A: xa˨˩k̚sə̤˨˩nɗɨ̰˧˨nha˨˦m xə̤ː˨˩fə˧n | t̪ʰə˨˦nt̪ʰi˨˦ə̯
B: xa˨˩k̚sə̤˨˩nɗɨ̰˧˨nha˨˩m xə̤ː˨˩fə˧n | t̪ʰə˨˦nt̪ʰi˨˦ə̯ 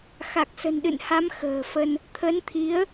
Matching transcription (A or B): A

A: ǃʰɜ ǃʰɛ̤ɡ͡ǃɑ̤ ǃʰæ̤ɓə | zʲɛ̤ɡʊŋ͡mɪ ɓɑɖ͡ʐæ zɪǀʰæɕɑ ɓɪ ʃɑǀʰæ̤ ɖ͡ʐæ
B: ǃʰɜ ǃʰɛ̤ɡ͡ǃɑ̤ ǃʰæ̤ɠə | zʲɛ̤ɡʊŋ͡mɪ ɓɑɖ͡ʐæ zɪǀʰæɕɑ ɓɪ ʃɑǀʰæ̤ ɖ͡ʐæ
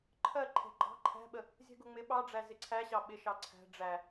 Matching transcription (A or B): A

